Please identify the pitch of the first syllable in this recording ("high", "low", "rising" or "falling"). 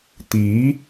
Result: rising